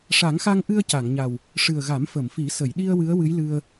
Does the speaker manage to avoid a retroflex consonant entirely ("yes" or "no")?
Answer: no